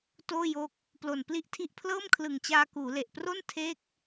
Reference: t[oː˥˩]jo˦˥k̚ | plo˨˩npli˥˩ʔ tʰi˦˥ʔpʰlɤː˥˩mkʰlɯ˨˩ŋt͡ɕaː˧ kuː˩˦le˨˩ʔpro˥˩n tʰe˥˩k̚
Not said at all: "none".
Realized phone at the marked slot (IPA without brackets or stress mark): oː˥˩